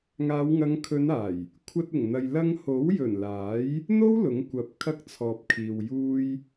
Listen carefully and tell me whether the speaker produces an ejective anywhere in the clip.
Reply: no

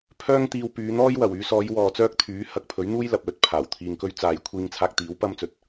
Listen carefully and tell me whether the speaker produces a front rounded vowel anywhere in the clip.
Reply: yes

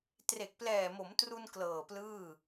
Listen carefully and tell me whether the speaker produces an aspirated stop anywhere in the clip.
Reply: no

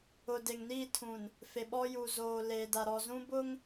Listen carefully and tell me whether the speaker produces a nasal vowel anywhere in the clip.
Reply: yes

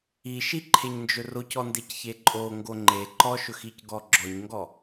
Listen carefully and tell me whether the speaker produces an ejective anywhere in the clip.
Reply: yes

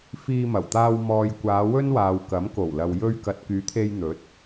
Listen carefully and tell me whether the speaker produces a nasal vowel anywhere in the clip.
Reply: no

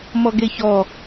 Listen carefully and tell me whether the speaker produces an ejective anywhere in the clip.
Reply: no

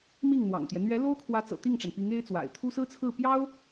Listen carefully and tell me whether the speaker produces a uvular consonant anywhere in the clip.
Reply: no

